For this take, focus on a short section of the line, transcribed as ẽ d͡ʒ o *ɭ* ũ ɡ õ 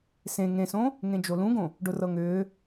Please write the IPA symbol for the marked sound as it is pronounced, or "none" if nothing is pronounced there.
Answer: l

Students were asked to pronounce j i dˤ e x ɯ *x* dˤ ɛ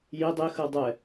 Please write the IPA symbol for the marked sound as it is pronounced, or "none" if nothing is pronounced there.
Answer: none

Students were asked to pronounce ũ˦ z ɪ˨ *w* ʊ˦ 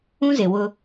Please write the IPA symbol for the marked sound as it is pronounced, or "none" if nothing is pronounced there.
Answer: w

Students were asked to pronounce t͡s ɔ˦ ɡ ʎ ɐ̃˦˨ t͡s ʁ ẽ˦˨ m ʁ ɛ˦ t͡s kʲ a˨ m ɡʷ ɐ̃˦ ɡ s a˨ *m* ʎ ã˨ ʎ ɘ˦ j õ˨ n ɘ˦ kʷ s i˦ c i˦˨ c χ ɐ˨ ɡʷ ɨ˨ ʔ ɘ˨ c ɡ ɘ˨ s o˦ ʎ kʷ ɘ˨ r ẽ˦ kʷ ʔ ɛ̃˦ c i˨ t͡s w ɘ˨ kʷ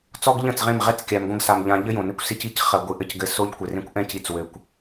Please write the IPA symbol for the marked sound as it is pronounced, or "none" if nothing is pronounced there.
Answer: m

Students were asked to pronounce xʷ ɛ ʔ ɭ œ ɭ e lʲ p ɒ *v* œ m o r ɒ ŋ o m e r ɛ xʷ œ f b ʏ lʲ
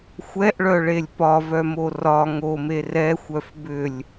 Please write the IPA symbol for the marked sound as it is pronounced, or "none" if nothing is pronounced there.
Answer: v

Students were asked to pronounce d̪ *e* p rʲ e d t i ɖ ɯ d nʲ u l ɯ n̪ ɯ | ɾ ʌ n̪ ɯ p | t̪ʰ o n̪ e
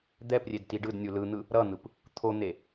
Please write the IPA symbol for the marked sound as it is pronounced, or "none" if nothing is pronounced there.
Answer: ɛ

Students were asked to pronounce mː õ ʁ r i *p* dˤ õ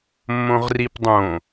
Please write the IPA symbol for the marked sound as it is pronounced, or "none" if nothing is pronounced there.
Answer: p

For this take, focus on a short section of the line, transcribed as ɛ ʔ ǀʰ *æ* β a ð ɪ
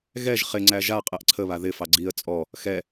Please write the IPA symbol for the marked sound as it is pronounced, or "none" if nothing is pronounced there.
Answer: ə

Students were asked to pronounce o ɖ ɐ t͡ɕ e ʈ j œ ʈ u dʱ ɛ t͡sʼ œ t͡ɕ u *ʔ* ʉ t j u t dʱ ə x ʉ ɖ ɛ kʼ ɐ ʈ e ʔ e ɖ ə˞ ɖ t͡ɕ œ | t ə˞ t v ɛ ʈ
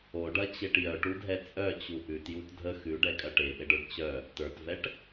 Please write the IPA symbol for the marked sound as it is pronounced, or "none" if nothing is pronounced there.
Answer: ʔ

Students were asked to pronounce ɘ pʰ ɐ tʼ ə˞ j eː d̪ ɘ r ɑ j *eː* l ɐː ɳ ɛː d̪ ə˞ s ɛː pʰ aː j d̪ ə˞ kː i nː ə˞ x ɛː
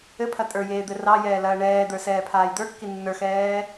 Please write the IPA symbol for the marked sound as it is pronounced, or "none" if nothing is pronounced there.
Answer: ɛː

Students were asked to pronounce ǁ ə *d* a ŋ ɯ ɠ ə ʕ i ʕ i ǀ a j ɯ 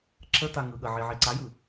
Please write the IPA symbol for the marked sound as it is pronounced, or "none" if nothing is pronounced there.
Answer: t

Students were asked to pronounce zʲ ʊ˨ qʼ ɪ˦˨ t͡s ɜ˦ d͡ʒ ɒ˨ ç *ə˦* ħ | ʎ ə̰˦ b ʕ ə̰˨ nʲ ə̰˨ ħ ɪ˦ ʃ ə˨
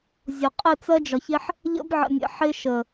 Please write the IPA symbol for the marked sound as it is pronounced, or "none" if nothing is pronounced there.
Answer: ɪ˦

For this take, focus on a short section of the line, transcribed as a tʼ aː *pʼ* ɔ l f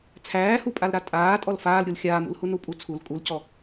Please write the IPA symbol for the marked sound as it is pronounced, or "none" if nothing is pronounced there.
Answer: tʼ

